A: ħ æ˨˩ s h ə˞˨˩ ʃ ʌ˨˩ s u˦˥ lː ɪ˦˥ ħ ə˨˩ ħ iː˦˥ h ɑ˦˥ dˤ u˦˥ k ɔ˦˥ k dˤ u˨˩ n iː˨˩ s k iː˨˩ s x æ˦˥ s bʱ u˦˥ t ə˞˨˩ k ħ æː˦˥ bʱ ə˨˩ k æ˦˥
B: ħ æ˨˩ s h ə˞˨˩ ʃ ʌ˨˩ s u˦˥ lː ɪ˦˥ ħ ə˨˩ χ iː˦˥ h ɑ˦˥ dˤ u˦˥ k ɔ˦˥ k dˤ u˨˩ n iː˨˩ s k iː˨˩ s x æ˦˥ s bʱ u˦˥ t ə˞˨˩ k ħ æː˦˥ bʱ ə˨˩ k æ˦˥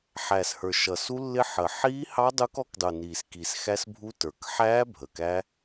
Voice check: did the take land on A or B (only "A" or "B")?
A